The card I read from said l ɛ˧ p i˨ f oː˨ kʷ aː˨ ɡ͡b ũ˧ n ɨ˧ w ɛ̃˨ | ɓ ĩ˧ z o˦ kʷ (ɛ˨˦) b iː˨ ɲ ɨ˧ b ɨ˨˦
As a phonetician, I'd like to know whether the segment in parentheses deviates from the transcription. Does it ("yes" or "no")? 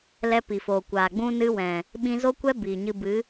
yes